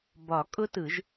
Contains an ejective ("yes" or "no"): yes